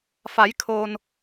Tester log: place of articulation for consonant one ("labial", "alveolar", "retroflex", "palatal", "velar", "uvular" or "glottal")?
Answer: labial